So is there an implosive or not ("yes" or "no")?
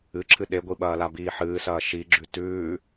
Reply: yes